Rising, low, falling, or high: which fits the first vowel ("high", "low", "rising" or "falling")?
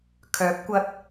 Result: rising